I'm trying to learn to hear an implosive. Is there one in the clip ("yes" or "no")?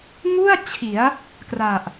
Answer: no